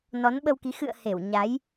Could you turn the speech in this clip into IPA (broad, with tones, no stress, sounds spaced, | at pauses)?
n ɔ˨˦ n ɓ ə˧ w k i˨˦ x ɨ̰˧˨ ə̯ h e˧˩ w ɲ a˨˦ j